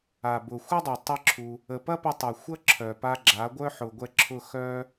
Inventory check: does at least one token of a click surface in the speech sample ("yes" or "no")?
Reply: yes